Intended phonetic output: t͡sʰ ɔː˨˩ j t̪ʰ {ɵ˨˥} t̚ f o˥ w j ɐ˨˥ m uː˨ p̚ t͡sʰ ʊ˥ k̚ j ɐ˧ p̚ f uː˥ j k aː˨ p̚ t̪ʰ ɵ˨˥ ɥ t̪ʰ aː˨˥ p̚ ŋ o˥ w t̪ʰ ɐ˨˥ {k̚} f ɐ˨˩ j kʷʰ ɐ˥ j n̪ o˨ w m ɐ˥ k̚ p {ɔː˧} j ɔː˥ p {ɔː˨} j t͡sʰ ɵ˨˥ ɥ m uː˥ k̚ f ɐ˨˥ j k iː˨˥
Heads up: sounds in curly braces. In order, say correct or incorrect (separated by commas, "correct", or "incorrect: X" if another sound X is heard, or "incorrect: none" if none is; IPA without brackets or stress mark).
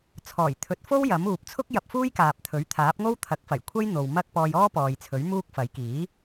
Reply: correct, correct, correct, correct